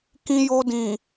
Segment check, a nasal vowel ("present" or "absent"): present